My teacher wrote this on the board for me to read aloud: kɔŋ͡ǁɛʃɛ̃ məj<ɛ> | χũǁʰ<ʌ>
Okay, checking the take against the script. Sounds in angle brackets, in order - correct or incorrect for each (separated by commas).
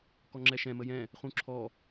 incorrect, incorrect